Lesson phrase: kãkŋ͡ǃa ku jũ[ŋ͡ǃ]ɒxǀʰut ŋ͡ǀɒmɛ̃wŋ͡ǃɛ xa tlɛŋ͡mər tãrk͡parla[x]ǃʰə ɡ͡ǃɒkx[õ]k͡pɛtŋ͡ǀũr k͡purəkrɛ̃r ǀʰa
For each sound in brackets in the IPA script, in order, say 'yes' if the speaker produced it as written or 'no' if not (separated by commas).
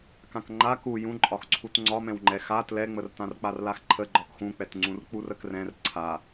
no, yes, no